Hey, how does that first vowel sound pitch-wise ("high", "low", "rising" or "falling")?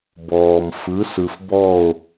low